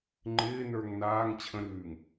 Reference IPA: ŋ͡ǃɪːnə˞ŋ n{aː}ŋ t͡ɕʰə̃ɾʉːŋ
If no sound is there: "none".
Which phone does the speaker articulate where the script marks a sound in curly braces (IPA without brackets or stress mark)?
aː